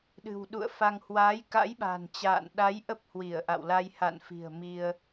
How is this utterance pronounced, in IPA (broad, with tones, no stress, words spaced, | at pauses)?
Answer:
ɗɨ̤˨˩wɗṵ˧˨ə̯ fa˧ŋ hwaː˨˦jka̰˧˥jɓa̤˨˩n t͡ɕa̰ː˧˨n ɗa˨˦j ʔə˦˥p̚hwi˧˩ə̯ʔa̰˧˨wla˧j ha̰˧˨nfi̤˨˩ə̯ mi˧ə̯